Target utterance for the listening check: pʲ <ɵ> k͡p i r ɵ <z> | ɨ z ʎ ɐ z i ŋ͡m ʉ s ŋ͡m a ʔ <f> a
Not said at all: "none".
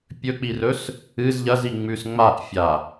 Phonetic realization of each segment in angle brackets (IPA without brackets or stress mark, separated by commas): ɵ, s, fʲ